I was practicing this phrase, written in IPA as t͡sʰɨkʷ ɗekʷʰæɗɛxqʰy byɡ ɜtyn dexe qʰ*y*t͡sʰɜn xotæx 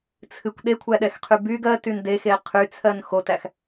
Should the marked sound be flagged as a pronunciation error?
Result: no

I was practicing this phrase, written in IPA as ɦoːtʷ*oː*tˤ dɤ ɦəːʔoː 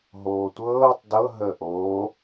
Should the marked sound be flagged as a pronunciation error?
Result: yes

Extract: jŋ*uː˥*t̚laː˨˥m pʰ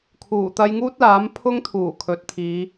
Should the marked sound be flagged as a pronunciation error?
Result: no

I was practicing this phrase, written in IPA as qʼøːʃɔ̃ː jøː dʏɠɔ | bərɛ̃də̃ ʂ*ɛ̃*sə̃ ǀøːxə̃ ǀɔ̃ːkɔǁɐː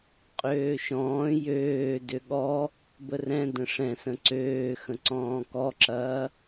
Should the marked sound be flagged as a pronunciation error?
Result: no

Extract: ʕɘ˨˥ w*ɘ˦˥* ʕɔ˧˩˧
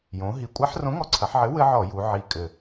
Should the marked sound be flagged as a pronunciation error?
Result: no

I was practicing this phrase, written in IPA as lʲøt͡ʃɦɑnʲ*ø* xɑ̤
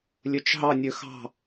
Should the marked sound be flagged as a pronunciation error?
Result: no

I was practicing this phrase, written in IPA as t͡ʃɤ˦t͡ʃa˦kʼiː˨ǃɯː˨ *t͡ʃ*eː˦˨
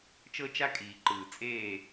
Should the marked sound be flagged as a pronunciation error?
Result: yes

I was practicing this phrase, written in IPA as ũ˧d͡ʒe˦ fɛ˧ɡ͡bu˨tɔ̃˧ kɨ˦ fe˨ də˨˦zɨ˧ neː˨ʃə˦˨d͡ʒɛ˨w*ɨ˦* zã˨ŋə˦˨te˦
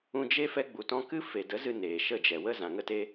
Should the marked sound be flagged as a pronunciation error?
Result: yes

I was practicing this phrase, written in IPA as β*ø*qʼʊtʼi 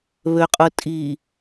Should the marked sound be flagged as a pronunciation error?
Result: no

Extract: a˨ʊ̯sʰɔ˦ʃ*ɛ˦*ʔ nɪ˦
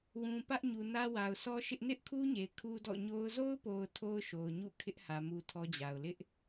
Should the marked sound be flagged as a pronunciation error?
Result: yes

